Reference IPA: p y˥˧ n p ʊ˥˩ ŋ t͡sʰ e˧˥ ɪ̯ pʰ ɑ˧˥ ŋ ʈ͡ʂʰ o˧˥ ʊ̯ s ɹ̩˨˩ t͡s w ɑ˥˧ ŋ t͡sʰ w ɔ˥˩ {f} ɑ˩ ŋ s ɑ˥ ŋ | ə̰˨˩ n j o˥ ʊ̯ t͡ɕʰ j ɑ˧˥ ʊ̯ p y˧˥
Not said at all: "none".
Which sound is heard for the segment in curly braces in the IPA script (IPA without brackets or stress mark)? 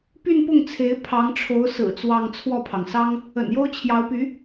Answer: pʰ